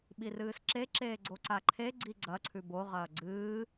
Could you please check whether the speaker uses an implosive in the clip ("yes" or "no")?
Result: yes